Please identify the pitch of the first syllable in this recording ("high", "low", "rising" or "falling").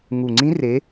low